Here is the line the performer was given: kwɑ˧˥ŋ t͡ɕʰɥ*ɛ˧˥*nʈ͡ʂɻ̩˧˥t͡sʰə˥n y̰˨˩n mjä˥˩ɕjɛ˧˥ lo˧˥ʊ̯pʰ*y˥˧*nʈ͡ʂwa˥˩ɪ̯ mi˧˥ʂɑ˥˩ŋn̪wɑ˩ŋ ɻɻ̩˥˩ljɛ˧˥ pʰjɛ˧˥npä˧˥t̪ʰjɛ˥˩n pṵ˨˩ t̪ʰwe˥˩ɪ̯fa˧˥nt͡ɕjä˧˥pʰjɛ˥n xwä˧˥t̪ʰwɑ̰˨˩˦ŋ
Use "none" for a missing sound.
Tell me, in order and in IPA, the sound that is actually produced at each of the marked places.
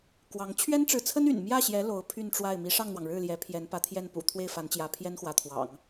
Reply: ɛ˥, y˥˧

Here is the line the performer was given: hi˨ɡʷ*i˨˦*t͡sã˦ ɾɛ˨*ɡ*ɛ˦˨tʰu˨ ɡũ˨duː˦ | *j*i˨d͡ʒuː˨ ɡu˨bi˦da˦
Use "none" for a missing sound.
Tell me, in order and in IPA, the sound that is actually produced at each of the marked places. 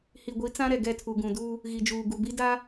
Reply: i˨˦, ɡ, ɣ

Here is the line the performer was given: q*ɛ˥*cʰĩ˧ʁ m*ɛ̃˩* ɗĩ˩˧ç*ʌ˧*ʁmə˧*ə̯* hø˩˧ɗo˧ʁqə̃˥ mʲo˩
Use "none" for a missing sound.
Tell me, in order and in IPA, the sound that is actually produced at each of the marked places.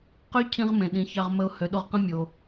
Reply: ø˥, ẽ˩, ɑ˧, ʊ̯

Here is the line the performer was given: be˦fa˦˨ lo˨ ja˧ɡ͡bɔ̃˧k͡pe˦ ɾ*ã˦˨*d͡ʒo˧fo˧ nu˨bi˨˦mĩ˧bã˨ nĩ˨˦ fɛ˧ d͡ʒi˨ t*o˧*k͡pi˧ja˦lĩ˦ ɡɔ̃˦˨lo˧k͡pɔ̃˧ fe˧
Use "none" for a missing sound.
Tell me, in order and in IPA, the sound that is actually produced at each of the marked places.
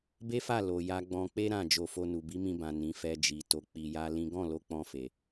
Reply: ã˦˨, o˧

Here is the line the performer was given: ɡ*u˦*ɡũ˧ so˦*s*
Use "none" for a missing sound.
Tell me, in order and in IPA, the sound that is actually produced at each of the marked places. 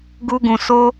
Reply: u˦, none

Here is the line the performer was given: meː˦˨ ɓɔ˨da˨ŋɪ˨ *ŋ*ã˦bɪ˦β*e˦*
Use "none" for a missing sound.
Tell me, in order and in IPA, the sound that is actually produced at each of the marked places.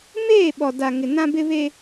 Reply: n, e˦

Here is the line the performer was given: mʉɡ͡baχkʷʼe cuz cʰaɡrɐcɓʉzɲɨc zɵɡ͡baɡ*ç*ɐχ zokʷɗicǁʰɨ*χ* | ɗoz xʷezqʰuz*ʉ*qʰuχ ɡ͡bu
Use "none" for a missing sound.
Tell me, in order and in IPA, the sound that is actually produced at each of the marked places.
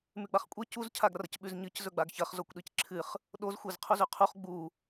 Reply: ç, χ, ʉ

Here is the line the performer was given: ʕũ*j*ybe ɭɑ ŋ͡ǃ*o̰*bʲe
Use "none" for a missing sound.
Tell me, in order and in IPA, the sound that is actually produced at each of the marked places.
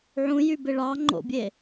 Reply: j, o̰

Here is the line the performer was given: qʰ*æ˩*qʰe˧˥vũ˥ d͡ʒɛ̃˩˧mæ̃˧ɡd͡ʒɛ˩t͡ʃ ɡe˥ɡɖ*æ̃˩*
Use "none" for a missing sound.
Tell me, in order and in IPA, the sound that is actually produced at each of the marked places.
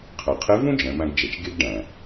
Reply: æ˩, æ̃˩

